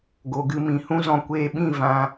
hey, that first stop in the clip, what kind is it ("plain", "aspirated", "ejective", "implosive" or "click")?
plain